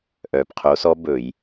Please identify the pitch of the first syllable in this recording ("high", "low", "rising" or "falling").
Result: low